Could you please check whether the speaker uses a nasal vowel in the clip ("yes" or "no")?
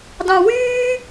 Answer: yes